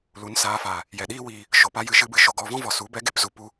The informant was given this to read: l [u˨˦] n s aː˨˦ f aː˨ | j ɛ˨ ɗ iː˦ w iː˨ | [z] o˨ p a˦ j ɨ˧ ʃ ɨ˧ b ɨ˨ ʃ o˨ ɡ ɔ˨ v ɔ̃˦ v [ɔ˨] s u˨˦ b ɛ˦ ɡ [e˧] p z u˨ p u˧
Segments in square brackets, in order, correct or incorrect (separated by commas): correct, incorrect, correct, correct